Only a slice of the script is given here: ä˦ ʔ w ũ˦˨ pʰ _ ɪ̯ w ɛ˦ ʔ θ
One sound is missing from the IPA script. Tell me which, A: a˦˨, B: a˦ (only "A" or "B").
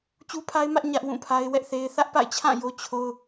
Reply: B